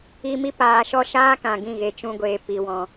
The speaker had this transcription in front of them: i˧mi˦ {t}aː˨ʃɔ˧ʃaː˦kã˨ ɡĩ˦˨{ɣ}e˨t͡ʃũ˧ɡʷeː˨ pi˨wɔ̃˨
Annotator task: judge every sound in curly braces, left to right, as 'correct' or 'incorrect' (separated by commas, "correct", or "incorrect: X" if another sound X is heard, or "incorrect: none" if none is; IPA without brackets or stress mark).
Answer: incorrect: p, correct